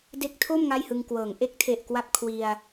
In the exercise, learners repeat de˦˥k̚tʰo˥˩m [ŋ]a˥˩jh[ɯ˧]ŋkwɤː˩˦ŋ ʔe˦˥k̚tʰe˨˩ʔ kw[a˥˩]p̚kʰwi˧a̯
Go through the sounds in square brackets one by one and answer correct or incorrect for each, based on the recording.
correct, correct, correct

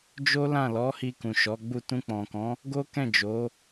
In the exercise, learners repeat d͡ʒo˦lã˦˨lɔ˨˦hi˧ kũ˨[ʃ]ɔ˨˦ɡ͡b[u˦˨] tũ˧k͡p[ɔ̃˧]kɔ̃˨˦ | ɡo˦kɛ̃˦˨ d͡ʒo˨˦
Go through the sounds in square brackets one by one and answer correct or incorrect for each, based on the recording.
correct, correct, incorrect: ɔ̃˨

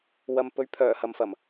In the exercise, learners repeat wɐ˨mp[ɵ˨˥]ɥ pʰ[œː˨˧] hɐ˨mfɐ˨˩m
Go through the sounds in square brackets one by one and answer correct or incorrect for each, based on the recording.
correct, incorrect: œː˨˩

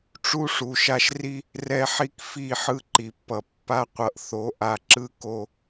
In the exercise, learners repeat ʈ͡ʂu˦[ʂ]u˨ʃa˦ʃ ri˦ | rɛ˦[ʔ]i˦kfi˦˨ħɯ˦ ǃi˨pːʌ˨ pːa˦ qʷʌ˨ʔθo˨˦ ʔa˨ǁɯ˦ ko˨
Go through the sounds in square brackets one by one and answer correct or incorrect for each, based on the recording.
correct, incorrect: ħ

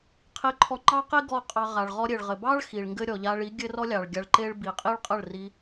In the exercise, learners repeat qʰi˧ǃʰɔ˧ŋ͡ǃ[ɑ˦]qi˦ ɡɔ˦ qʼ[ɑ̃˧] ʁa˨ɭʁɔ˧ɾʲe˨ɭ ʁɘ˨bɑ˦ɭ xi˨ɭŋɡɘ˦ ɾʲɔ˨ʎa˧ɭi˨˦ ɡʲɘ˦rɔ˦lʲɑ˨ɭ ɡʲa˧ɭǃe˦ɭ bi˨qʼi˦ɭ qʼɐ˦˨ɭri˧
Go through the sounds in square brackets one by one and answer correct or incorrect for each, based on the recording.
correct, incorrect: ɑ˧

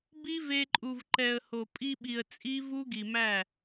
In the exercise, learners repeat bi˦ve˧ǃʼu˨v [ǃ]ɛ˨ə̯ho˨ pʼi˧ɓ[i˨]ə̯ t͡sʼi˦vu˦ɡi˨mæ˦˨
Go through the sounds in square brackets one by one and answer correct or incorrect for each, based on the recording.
correct, correct

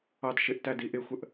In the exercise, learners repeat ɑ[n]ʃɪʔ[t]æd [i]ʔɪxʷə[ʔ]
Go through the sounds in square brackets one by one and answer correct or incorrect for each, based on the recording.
incorrect: d, correct, correct, correct

